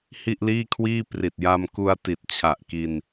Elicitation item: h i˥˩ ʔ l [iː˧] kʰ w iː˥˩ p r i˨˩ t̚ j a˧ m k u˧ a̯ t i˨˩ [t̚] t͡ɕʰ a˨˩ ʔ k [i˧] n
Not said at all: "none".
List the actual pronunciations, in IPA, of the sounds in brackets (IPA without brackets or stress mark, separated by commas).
iː˥˩, t̚, i˧